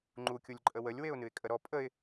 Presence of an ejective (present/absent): present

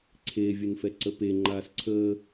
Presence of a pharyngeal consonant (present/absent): absent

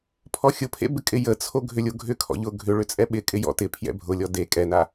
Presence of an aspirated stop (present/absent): present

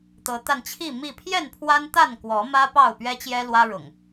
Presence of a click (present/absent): absent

